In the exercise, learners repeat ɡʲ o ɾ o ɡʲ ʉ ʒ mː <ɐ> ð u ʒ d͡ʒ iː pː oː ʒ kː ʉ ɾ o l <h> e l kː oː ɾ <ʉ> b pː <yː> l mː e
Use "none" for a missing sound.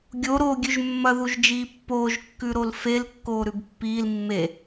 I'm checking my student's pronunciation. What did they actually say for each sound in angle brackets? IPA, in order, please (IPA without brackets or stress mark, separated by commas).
ɐ, f, ʉ, iː